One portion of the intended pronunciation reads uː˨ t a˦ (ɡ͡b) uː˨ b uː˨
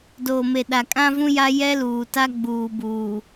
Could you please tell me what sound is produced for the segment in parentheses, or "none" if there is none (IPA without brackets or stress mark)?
ɡ͡b